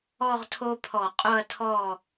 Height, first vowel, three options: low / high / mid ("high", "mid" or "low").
mid